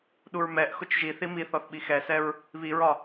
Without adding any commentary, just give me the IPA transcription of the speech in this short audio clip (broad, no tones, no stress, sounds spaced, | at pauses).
ɗ u ɹ m ɛ ʔ x ʊ t͡ʃ ʒ i θ i m i θ ɔ θ ɓ i x ɛ s ɛ ɹ | β i ɹ ɒ